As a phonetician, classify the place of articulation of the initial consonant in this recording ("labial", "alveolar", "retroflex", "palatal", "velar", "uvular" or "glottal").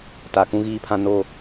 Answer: alveolar